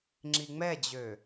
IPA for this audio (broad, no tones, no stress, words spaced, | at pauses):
ŋ͡ǁiŋ͡mɛd͡ʑø